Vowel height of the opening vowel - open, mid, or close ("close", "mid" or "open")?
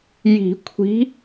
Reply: close